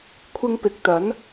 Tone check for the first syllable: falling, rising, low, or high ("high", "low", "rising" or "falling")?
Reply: high